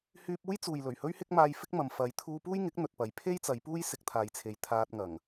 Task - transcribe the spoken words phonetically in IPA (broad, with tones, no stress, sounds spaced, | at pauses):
h yː˧ p̚ uː˥ j t͡s uː˨ j l ɵ˨˩ ɥ h ɵ˥ ɥ h ɪ˥ k̚ m aː˧ j f ɪ˥ k̚ m ɐ˨ m f ɐ˨˧ j t̪ʰ uː˧ p uː˥ j ŋ ɪ˨˥ k̚ n̪ ɵ˨ t̚ p ɐ˨˧ j pʰ e˥ j t͡s ɐ˨˧ j p uː˥ j s ɪ˧ k̚ t̪ʰ aː˨ j t͡sʰ e˨˧ j t̪ʰ aː˧ t̚ ŋ ɐ˨˩ ŋ